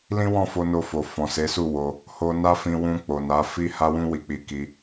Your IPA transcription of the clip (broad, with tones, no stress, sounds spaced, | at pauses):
l ĩ˦ w ɔ̃˦˨ f o˧ n o˧ f o˨ f ɔ̃˨ s e˨˦ s u˦˨ w o˧ | h o˧ n a˦ f ĩ˧ w ũ˧ k͡p o˨ n a˨˦ f i˦ h a˦ w ũ˦ w i˧ k͡p i˧ k i˧